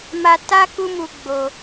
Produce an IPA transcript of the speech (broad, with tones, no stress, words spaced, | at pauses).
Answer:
ma˧ ta˦ ku˦mu˧ ɡ͡bo˧